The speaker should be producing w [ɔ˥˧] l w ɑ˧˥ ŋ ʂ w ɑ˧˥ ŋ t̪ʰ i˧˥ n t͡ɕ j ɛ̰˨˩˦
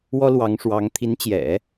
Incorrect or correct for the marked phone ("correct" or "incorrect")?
incorrect